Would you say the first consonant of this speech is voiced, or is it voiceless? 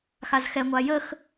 voiceless